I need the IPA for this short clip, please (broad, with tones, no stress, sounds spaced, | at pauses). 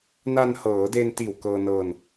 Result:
n a˧ n h ɤː˩˦ d e˧ n t iː˨˩ w k ɤː˧ n ɤː˧ n